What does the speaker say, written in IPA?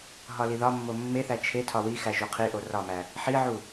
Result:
ɦ ɒ l i ð ɒ mː o mː e θ æ t͡ʃʰ e tʰ ɒ w i x æ ʒ u qʰ i ʔ o r ɒ m æ | ħ i ʕ u

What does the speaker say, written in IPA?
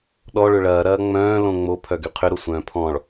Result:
ɗ ɔ ɭ ʏ ɭ ɐː ɾ ɐː ŋ͡m œ̃ː l õ ŋ͡m o pʰ œ ɡ y qʰ ʏ ɾ o sʷ œ̃ː pʰ ɔ̃ ɭ

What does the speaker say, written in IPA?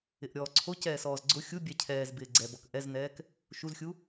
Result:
ɪ ʔ ɾʲ ɔː ǀʰ o c ɛː s ɔː z ɡ͡ǀ ʊ xʲ u bʲ ɛ cʰ ɛː z b ɪː ɡ͡ǀ ɛ b ɔ k ʔ ɛ z n ɛː k | ʃ u z xʲ u

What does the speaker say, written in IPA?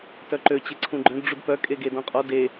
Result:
t œ ǃ ø t͡ɕ e ǀʰ ũ ɡ͡ǃ œ̃ d ɖ͡ʐ u d p œ kʼ e ɡ e d ɔ̃ qʼ ɔ d e

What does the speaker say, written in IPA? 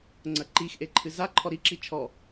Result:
ŋ͡ǀ ɐ ǃ i x ʔ e ǃʰ ɨ z a ǃʰ ɔ ɾ i ǁ i t͡ʃʰ ɔ

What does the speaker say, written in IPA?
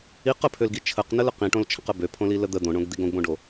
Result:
i q ə pʰ ø l ɡ i t͡ʃʰ ə q n ə l ə q ĩ ʈ õ l t͡ʃʰ ə̃ q ə b ø pʰ õ l i l ə d̪ ə d̪ õ ɳ õ ɡ d̪ i ɡ õ ɡ b õ ɖ o

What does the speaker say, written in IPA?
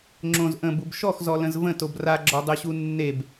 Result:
ŋ͡ǁ õ z ʔ ə̃ b u b ʃ ɔ x z ɔ l ə̃ z v ə̃ t o b r a ɡ͡ǁ ɔ dˤ ø ɕ u nː e b

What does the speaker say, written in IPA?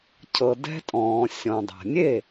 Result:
cʰ ɤ˩ d ɛ̤˧ tʼ ɔ̃ː˩ sʲ ɔ̃˩ dˤ a̤˩ nʲ e˥˩

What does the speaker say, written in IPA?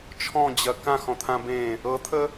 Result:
t͡ʃʰ ɔ̃ d͡ʑ ɐ k ã x ɔ̃ t̪ʰ ã b ẽ | ɤ t̪ʰ ə

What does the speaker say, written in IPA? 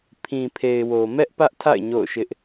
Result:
pʰ ĩ˨ pʰ e˨ ɪ̯ w o˨ m ɛ˦ ʔ p ä˦ ʔ tʰ a̰˦˨ ɪ̯ ɲ o̰˦˨ ʊ̯ ʃ ɪ˦ ʔ

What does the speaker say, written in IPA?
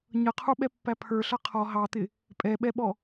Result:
ɲ ʌ qʰ u ɓ ɛ pː æ pʰ ə˞ ɬ ʌ qʰ ɔ ɦ ɑ t̪ ɪ | pʼ ɛ ɓ ɛ ɓ ɔ

